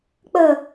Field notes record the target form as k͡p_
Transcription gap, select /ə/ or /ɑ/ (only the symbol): ə